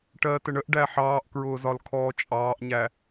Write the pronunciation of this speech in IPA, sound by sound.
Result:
ʈ ɜː t ə ɳ ə ʔ ɖ æ ħ ɑː ʔ k ɹ ʊː z ɒ l kʰ ɔː t͡ʃʼ ɑː ʔ ɲ æ

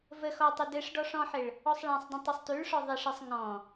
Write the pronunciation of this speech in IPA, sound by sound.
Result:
v ə x ɔ tˤ ɪ d ɘ ʂ ɖ ɔ ʂ ɔ̃ ħ ɘ ɭ | ɔ sˤ ɭ ã sˤ d ə̃ tˤ ɘ sˤ t ʉ ɭ ʂ ɔ ðˤ ɪ ʂ ɘ sˤ ŋ ɔ̃

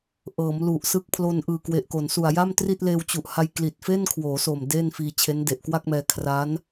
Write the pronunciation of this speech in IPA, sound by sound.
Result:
ʔ ɤː˩˦ m l u˨˩ ʔ s ɯ˦˥ k̚ pʰ l o˧ n ʔ ɯː˨˩ k w e˨˩ ʔ k o˩˦ n s u˨˩ a̯ j a˥˩ m t r i˥˩ t̚ l eː˧ w t͡ɕ u˨˩ ʔ h a˧ j k l i˨˩ t̚ f e˥˩ n kʰ w oː˩˦ s o˨˩ m d eː˥˩ n f iː˧ t͡ɕʰ e˦˥ n d e˨˩ ʔ k w a˥˩ k̚ m ɛː˧ kʰ r a˦˥ n

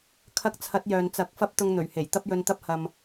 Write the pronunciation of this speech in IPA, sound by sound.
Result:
kʰ ɐ˧ k̚ t͡sʰ ɐ˨˥ t̚ j œː˨ n t͡s ɐ˨˥ k̚ f ɐ˥ p̚ t̪ ʊ˧ ŋ n̪ ɵ˨˩ ɥ h e˨˩ j t̪ ɐ˥ p̚ j ɵ˧ n t̪ ɐ˥ p̚ h ɐ˨ m

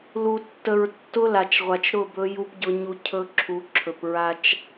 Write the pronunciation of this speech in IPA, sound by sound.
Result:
l u˨ tː ə˨ ɹ tː ʊ˦ l a˨ t͡ʃ ʁʷ a˨ t͡ʃ ɾ ʊ˦˨ b ɵ˦ j u˦ p ɟ ʊ˦ ɲ u˦ cʰ ɵ˦ ǁʰ u˨˦ ǁʰ ɵ˨ p ɹ a˦ t͡ʃ

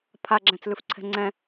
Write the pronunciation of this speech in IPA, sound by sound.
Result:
pʰ a ɡ͡ǁ æ̃ t͡s l ʉ f ǀʰ ɛ̤ ŋ͡ǀ ɛ̃

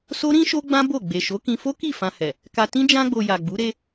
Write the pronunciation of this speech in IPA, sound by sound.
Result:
s o˦ ɾ ĩ˦ ʃ o˦ ɡ͡b ã˦ b o˦˨ ɡ͡b e˨ ʃ o˨˦ k ĩ˧ f o˦ k i˦˨ f ã˧ h ɛ˨ | k a˧ t ĩ˦ d͡ʒ ã˧ ɡ͡b o˨ j a˨ ɡ͡b u˨˦ ɾ e˧

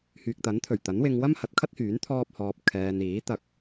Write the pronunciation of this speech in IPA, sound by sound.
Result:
h yː˨ k̚ t̪ ɐ˨˥ n t̪ʰ ɵ˨˩ ɥ t̪ ɐ˨˥ n w ɪ˧ ŋ w ɐ˥ m h ɐ˨˥ t̚ kʰ ɐ˥ t̚ h yː˨˥ n t̪ʰ ɔː˥ p̚ h ɔː˧ p̚ kʰ ɛː˧ n iː˨˥ t̪ ɐ˧ k̚

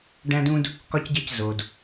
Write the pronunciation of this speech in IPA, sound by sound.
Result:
ɖ æ̃˥ d ũ˥ d | k ɒ˥ c ɟ e˥˧ c z o˧ d

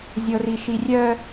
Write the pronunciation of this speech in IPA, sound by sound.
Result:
zʲ ɤ r i ʃ i rʲ œ

